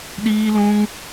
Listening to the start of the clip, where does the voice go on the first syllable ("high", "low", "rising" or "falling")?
high